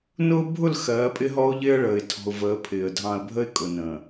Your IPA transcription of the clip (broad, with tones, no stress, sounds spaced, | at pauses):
n ʊː˦ bʱ ʊ˦˨ l x ɜː˨˦ pʼ ɪ˦ ɦ ɔ˦ ʊ̯ ʎ ɪː˦ ə̯ ɭ əː˨ ɪ̯ tʰ ɔ̤˨ ʊ̯ v əː˨˦ pʰ ɪː˨ ə̯ dʱ ɑ̃˨ ə̯ bʱ ə˦ ɪ̯ kʼ ʊ˨ n ə̃ː˨